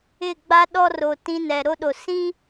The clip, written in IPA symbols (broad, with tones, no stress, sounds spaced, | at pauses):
ɪ˦˨ ɡ͡b a˦ ɗ ɔ˦ r o˨ t ĩ˦ n ɛ˨ ɾ o˦ ɗ o˨ s ĩ˦